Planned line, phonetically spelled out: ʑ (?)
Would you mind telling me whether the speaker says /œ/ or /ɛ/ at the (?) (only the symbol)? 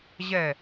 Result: ɛ